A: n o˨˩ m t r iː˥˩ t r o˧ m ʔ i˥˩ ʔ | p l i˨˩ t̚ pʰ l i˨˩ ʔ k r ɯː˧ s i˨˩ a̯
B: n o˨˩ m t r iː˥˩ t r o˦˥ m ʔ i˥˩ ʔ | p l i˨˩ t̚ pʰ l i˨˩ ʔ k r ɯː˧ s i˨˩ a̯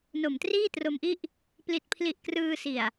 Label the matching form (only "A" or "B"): A